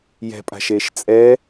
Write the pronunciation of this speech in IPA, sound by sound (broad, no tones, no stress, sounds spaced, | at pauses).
j ɛ̤ pʼ a̤ ʃ eː ʃ t͡sʼ ɛ